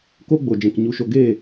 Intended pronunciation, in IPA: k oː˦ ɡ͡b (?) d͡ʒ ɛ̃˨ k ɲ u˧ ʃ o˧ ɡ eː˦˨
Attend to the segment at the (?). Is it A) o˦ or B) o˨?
B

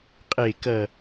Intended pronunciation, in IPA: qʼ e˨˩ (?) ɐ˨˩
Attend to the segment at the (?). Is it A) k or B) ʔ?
A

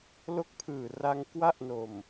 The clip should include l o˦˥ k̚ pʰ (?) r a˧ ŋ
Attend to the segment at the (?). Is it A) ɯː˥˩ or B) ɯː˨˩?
B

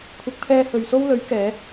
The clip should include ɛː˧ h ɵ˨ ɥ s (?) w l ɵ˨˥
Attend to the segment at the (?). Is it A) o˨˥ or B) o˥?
B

